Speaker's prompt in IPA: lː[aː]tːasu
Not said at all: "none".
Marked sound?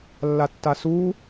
a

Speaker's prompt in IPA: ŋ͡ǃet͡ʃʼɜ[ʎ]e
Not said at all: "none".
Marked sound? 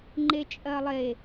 lˠ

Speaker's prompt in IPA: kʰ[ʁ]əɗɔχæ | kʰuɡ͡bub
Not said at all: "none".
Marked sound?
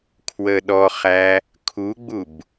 w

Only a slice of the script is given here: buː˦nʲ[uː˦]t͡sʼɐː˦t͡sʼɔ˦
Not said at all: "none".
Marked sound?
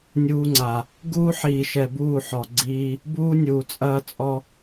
uː˨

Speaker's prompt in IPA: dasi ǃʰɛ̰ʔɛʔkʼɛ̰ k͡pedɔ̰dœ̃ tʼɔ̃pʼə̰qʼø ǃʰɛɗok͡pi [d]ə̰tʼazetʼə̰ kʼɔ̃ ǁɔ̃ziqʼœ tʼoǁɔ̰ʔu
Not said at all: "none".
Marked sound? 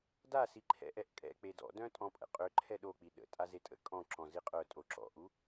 ɗ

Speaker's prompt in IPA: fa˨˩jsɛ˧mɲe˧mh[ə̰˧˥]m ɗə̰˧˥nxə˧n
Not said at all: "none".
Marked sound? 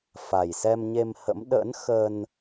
ə̰˧˥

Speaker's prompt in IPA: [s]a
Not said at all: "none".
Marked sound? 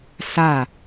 s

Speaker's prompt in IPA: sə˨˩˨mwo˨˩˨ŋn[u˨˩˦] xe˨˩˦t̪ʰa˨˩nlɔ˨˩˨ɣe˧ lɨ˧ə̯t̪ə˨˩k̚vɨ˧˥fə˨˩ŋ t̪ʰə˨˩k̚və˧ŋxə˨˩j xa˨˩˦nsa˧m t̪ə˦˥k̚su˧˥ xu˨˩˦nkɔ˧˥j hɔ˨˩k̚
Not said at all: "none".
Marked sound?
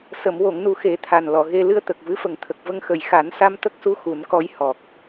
u˨˩˦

